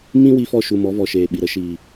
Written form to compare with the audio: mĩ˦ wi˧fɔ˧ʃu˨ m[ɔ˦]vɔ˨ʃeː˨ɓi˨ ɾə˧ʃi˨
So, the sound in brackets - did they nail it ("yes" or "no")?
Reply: no